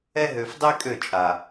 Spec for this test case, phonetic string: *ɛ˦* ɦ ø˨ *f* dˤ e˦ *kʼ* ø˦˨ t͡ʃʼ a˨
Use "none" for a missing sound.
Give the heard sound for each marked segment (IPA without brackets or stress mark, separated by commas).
ɛ˦, f, kʼ